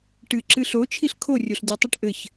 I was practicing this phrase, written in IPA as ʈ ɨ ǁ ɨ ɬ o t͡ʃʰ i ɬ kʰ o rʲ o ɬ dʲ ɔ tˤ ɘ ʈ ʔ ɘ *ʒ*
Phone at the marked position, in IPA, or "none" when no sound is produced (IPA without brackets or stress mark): ç